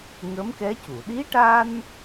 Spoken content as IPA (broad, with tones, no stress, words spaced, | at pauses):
ŋə˧˥mkɛ˧˥cu˨˩˨ ɗi˧˥ʈa˧n